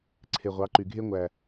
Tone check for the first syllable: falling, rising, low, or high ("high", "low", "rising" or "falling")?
low